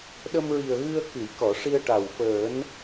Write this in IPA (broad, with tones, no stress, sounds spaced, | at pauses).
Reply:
ɗ ə˧ m ɹ i˨˩ ə̯ ɣ ɨ˧ ə̯ k ɨ˨˩˨ j k ɔ˨˩˨ ʂ i˧ ə̯ ʈ a˨˩ w f əː˨˩˦ n